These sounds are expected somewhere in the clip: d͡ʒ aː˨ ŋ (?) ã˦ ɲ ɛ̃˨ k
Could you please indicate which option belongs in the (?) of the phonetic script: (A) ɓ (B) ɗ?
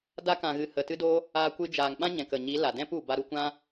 A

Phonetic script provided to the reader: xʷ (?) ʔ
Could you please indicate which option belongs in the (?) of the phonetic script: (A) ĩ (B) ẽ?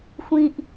A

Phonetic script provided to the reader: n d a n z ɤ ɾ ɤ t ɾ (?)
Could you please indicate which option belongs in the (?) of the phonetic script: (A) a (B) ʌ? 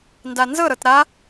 A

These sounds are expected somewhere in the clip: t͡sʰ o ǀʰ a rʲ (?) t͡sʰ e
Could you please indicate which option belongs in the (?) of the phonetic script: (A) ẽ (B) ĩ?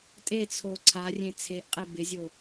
A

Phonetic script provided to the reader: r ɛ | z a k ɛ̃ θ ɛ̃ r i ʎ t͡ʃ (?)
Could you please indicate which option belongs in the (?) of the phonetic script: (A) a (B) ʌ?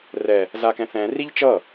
B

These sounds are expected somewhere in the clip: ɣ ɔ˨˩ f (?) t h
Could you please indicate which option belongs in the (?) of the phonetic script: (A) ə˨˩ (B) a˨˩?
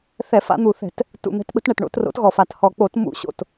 B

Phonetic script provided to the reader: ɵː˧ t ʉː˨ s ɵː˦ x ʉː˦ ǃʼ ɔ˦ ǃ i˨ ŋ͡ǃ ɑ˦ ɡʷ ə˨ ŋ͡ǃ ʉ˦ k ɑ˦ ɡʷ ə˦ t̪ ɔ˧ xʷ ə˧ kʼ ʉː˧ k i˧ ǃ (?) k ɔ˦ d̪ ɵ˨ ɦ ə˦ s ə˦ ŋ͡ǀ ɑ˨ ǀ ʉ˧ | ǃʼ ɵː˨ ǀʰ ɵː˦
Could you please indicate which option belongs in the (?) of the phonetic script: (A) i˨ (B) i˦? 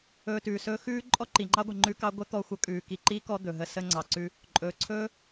B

